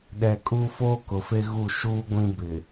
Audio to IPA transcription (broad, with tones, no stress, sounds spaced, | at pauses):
ɗ ɛ˨ kʼ u˦ f oː˦ k ʊ˨ f e˦ ɣ u˦˨ ʃ uː˦ ɡʷ ĩ˦ b ɪ˨